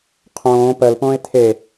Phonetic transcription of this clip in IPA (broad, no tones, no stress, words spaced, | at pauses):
qʰõː pɜlpõːe̯ tʰe